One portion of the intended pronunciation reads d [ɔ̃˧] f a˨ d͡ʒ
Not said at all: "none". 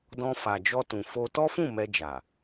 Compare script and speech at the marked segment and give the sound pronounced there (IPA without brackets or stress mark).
ɔ̃˧